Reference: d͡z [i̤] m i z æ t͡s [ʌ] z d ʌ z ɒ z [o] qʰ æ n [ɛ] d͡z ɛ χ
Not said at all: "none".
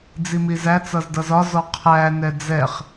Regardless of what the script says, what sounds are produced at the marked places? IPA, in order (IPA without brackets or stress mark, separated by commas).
i, ʌ, ɔ, ɛ